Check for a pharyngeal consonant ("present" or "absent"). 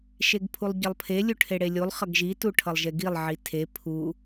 present